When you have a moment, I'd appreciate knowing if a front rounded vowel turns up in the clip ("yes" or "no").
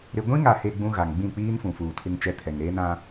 no